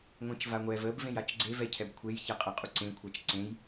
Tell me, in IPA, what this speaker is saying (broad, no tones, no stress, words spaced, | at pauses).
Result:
ŋʷẽt͡ʃvaŋʷɛv əb vẽjat͡ʃɡ͡ǀe vɛcʰɛbkʷʰej çaqʼɜqʼuǀẽ kʷʰat͡ʃǀẽj